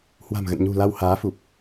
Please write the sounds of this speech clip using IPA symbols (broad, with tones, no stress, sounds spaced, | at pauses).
h w a̤˨˩ m ɣ ə̰˧˨ n ɲ ṳ˨˩ l a˧ w h aː˨˦ f u˨˩ p̚